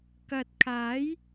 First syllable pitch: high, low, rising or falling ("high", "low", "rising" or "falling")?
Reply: low